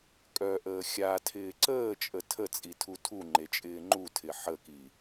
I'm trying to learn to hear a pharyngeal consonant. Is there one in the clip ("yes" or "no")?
yes